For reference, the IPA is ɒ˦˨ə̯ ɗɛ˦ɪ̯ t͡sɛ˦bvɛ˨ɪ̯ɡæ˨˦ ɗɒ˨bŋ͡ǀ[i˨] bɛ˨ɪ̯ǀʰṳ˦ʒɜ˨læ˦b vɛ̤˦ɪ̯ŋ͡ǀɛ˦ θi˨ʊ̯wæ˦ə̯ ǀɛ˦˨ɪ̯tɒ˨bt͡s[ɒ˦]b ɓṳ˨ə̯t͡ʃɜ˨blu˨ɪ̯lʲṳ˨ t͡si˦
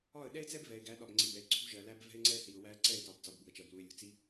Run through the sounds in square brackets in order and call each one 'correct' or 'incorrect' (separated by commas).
correct, incorrect